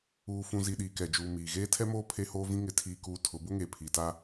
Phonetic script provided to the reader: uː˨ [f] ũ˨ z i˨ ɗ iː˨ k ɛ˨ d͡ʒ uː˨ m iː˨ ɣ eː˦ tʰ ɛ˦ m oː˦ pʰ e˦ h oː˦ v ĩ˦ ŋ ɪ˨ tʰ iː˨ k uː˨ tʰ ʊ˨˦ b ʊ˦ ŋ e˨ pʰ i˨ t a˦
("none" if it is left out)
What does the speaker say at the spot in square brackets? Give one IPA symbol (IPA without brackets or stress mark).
f